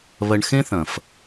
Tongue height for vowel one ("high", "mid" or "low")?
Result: low